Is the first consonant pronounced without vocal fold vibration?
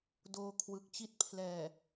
no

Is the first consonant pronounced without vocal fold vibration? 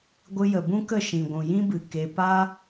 no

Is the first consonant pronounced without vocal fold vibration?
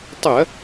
yes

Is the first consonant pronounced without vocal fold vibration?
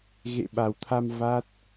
no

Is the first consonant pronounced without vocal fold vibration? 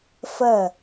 yes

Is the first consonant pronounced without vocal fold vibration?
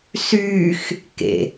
yes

